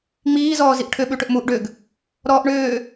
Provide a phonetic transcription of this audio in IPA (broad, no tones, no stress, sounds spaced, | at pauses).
ŋ͡m iː z ɔː z i ʔ ʈʰ ʏ ɓ ʉ ʈ ʏ ʔ m u ʔ ɖ ʏ ɡ | ɾ ɔː ʔ ɳ ʏː